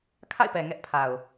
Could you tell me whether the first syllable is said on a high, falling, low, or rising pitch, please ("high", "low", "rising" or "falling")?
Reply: falling